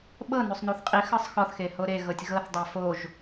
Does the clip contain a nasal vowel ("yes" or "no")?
no